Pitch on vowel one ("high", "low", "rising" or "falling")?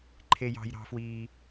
high